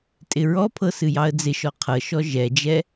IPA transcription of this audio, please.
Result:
tʼ ɪ ɹ ɔ pʰ ɤ s ɨ j ɑ ə̯ d͡z ɪ ʃ ɔ qʰ ɤ ʃ ɔ ʒ ɛ d͡ʒ ɛ

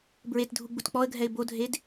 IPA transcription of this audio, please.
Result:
b ɹ e t dʱ u ɡ͡b u t k͡p ɔ ə̯ ɡʱ ɛ ɪ̯ b o dʱ e d

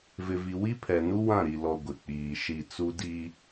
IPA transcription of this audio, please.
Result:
v ɪ˨ v i˨ w i˦ pʰ ɛ˨ n u˦ w ã˦˨ ɾ i˨ l ɔ˨ ɡʷ ɪ˨ k͡p iː˨ ʃ i˦˨ t͡s u˦ d i˦

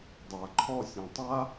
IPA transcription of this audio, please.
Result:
dˤ a ǃʰ ɔ sʲ ã tˤ a

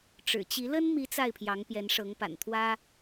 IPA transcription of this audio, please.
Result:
ʈ͡ʂ ɻ̩˨˩ t͡ɕ i˧˥ l ə˥ n m i˧˥ t͡s a˥˩ ɪ̯ pʰ j ɑ˧˥ ŋ p j ɛ˧˥ n ʂ ɤ˧˥ ŋ p a̰˨˩ n t̪ʰ w ä˥

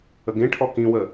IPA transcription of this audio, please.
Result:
ə ɡ ẽ ʈʰ ɔ k ĩ w ə

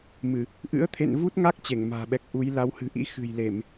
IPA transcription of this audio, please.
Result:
m ɨ˧˩˨ | ʔ ɨ̰˧˥ ə̯ t̪ʰ ḛ˧˨ n v u˦˥ t̚ ŋ a˦˥ k̚ t͡ɕ e˧˩ ŋ m a̤ː˨˩ ɓ ɛ˨˩ k̚ ʔ u˨˦ j l a˨˦ w h ɨ̤˨˩ ʔ ḭ˧˥ x ɨ̤˨˩ j l e˧˩˨ m

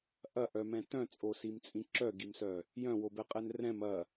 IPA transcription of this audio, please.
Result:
ʔ ɐ ʔ œ m ɛ̃ t œ̃ t͡sʼ o s i m t͡sʼ ĩ ǁ œ ɡ i m s œ | j œ̃ w o b ɛ qʼ ɛ n r ɛ̃ m ɐ

